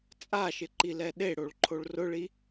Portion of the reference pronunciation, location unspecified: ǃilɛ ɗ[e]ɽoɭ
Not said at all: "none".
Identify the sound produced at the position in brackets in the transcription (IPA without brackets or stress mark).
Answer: e